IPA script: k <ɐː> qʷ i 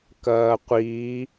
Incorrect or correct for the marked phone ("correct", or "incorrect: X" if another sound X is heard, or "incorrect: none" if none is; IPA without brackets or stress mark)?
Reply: correct